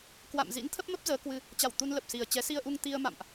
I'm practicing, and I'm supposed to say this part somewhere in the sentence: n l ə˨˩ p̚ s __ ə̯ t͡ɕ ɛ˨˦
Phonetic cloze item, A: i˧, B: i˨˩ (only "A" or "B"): B